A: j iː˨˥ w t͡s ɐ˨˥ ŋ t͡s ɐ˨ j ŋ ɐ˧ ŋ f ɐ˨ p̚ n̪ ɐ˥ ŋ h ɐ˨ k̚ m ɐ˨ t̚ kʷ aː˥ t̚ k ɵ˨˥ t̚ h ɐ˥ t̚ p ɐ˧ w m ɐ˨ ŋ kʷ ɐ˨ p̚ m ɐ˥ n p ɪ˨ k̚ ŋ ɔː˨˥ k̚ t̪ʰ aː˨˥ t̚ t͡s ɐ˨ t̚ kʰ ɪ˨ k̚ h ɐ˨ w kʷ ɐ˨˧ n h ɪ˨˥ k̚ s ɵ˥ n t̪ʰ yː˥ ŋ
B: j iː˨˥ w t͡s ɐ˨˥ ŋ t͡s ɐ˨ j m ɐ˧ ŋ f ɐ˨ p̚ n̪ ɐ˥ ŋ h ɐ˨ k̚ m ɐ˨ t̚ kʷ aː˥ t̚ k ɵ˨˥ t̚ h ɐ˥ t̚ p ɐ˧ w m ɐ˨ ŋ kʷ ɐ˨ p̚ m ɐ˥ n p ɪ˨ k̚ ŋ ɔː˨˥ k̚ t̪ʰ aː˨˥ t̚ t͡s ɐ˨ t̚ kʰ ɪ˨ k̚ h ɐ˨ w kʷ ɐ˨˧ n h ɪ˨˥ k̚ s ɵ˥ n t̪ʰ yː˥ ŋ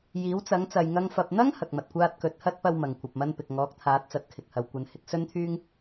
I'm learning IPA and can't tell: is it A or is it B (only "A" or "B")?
A